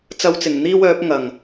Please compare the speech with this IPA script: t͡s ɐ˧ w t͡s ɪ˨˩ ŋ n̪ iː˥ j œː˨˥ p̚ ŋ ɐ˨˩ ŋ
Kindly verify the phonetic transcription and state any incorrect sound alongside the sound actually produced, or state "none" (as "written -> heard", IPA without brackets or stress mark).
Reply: j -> w